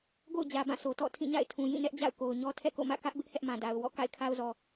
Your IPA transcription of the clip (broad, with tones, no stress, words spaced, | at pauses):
ɡo̰˦˨ʊ̯d͡ʑä˨bã˦˨sʰo˨ tɔ̰˦˨ tʰĩ˦˨ɲa̰˦˨ɪ̯tʰũ˨jĩ˦˨ nɛ˦ʔd͡ʑa̰˦˨ʊ̯ ko˨ʊ̯ɲɔ˦ tʰɛ̰˦˨ko̰˦˨ mä̰˦˨kä˦ʔbɪ˦ʔ hɛ˦ʔmã˨ da˨ʊ̯wɔ̰˦˨ ka̰˦˨ɪ̯kʰa˦ʊ̯zɔ˨